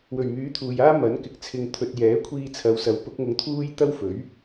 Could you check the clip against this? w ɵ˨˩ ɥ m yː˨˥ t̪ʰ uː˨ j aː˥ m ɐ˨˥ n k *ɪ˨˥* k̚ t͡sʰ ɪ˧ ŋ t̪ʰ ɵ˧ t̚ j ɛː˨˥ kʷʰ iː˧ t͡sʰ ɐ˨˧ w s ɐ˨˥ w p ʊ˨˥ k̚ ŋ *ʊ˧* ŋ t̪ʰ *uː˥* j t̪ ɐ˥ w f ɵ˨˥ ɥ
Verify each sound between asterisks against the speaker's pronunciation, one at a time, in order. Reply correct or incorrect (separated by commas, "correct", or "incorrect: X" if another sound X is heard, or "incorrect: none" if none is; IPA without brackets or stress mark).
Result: correct, correct, correct